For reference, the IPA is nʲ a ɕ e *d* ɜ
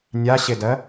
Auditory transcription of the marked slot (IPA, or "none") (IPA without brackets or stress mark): d